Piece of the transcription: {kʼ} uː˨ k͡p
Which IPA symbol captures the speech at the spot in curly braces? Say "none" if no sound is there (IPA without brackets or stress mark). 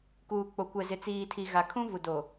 k